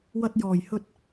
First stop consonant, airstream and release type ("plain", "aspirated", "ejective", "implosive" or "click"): plain